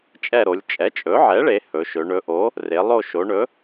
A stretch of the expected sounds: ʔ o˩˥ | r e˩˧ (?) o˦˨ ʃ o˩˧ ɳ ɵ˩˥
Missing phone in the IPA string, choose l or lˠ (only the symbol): lˠ